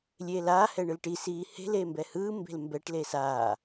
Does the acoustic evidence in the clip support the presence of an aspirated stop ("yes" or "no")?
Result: no